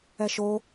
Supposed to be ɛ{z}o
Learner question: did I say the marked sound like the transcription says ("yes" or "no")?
no